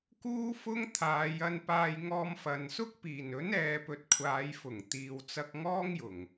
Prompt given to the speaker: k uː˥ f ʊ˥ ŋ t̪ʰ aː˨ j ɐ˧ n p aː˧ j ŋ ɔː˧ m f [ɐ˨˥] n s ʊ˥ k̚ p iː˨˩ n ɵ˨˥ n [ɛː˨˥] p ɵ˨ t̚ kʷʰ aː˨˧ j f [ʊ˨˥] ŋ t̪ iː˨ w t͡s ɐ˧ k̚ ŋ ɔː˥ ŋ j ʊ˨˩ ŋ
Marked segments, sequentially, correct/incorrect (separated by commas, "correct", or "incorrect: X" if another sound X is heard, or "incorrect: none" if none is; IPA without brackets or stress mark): incorrect: ɐ˨, incorrect: ɛː˨, incorrect: ʊ˨˩